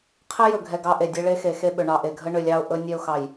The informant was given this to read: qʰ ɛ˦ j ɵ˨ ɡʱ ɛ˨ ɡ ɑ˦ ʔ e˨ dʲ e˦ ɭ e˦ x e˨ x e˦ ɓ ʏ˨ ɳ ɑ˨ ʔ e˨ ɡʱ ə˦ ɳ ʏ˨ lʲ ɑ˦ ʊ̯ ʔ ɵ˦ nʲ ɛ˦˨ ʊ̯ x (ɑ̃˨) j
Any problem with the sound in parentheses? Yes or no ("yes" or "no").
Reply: yes